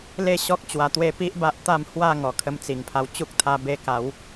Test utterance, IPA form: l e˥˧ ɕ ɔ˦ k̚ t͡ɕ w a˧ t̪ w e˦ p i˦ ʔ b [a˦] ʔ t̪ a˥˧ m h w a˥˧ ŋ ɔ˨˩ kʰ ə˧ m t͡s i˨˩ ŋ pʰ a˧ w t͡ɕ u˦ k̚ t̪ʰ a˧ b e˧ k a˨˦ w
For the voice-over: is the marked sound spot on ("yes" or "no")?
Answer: yes